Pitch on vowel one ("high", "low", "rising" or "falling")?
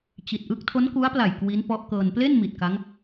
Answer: low